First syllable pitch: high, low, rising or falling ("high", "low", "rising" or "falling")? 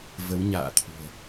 rising